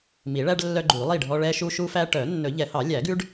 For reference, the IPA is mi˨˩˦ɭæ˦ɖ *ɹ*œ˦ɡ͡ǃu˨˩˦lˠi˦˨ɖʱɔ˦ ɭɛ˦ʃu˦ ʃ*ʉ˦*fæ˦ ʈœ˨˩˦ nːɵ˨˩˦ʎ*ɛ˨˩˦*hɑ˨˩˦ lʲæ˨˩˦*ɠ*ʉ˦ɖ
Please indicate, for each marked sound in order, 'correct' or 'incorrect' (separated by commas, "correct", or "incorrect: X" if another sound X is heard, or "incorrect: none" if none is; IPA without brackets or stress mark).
incorrect: lː, incorrect: u˦, correct, incorrect: ɡ